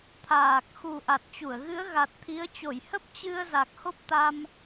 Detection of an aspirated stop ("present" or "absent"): present